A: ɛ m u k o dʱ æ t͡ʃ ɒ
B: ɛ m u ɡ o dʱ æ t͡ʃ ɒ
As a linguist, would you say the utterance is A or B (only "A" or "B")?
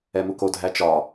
A